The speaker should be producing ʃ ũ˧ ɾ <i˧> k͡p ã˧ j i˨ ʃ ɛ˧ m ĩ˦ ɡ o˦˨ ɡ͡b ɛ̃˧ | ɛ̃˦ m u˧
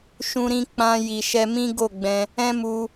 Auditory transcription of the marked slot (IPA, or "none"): ĩ˧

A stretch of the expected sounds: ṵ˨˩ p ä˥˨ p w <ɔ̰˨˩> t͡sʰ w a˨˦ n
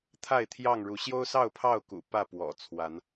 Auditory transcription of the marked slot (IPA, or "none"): ɔ̰˨˩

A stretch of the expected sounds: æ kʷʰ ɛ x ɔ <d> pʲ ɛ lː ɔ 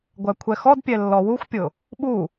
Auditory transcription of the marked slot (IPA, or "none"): d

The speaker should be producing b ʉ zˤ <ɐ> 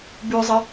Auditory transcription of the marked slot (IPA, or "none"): ɐ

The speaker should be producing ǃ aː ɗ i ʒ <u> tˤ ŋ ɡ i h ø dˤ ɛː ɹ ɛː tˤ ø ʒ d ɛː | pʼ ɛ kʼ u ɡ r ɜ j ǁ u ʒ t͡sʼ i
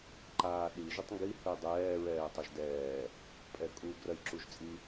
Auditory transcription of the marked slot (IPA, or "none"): u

